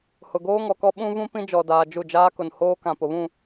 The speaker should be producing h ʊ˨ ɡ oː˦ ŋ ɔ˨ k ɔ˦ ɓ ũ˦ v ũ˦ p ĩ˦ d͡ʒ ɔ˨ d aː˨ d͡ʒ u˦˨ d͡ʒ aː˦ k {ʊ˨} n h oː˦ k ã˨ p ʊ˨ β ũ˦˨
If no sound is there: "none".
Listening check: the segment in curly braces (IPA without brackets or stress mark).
ʊ˨